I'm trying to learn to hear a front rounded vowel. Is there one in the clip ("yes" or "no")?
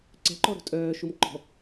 yes